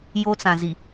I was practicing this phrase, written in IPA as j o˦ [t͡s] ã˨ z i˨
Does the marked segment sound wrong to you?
no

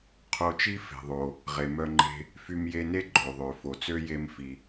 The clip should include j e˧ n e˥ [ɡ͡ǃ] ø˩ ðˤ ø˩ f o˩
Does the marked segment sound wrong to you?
no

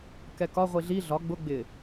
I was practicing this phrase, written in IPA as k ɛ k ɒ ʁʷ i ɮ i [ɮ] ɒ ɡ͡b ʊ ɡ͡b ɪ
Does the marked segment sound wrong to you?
no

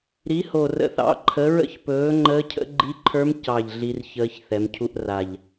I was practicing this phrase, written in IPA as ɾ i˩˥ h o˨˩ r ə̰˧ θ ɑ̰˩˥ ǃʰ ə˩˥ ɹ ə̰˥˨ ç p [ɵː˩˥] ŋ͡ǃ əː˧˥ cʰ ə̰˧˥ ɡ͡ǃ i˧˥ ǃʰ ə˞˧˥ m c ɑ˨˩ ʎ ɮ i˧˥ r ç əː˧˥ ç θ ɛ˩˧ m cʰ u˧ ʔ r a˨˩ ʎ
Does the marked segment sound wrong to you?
no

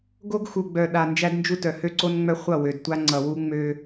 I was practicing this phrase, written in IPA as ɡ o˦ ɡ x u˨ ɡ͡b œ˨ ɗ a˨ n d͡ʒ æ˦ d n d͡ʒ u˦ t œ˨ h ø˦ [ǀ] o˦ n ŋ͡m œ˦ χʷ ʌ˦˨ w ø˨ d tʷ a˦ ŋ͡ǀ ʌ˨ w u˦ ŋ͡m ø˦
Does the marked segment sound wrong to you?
no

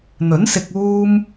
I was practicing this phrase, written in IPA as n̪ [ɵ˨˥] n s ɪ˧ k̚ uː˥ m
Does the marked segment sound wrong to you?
no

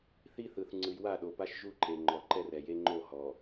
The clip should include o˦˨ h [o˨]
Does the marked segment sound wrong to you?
yes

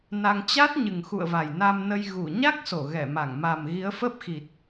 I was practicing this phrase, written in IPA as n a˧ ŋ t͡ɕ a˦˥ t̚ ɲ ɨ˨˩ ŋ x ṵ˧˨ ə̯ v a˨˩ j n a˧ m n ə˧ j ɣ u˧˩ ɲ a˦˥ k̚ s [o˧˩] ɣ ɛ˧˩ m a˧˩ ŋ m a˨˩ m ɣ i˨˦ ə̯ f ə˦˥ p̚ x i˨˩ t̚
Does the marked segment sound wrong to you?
no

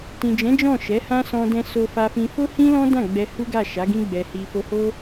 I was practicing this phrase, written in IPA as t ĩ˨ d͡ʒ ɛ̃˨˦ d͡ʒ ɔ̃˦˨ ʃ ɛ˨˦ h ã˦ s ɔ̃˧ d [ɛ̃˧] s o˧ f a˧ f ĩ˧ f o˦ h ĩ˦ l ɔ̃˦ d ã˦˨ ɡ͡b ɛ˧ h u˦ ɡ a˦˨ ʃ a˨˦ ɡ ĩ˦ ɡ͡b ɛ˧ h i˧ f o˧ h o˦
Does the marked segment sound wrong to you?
no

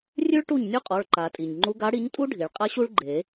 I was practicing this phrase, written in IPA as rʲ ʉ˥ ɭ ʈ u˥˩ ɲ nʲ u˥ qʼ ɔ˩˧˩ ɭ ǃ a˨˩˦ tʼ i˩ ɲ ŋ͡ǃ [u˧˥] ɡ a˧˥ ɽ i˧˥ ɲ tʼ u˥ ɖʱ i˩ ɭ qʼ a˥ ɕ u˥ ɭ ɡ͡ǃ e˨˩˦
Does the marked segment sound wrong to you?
no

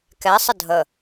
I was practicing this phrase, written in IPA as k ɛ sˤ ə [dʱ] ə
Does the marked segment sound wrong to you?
no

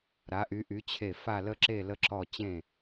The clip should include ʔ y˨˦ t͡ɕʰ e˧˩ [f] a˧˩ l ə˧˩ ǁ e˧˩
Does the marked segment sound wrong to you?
no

